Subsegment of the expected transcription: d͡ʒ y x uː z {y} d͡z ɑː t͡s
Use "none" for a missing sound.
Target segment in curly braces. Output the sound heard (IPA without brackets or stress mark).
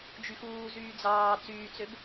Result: yː